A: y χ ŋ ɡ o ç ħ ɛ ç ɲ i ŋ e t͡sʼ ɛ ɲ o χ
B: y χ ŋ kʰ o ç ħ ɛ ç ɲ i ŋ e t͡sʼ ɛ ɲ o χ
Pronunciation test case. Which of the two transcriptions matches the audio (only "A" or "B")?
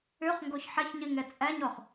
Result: A